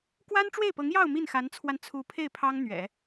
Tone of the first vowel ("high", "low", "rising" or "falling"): high